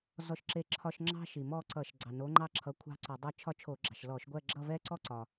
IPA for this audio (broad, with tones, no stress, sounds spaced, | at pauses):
z ɔ˥˧ ʃ ǁ e˥˧ ǁʰ ɒ˥ ʃ ŋ͡ǁ ɑ̤˥ ʃ i˩ m ɔ˥˧ ǀ ʌ˧˩˧ ʃ ɡ͡ǀ ɑ˩ n o˨˥ ŋ͡ǃ ɑ˥ ǁʰ ʌ˨˥ kʷʰ ɑ̤˥˧ ǀ ɒ˧˩˧ dˤ ʌ˥˧ t͡ʃʰ ɒ˥ t͡ʃʰ o˧˩˧ ɡ͡ǁ ɑ̤˩ ʃ l ɔ˧˩˧ ʃ ɡʷ ɜ˥˧ ɡ͡ǁ ʌ˥˧ v ɛ˥ ǀ ɔ˥ ǀ ɒ˩